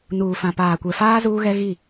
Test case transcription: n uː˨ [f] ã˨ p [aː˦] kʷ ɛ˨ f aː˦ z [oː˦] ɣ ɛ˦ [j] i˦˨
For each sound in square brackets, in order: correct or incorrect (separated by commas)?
correct, incorrect, incorrect, incorrect